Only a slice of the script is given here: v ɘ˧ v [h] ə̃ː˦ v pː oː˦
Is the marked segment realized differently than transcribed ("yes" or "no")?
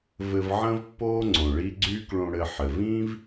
yes